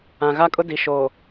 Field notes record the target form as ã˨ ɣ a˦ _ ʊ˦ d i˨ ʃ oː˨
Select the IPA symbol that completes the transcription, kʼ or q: kʼ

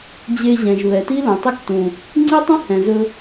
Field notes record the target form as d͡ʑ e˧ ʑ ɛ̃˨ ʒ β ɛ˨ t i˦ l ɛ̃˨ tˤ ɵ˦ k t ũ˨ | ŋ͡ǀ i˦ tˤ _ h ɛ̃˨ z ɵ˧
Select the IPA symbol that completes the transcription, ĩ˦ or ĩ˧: ĩ˦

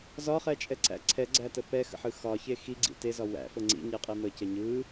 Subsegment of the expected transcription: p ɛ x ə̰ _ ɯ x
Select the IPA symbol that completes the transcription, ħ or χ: ħ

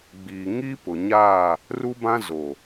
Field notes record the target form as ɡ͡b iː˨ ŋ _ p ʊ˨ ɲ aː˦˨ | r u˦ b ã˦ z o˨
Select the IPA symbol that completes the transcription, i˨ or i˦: i˦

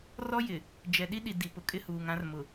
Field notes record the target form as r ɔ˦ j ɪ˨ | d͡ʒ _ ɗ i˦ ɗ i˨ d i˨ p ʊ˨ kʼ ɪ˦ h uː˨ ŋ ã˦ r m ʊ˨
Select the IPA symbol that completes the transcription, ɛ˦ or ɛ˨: ɛ˨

